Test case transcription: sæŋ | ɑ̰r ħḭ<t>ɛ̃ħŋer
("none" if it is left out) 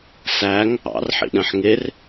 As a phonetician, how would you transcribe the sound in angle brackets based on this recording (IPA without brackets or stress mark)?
ɗ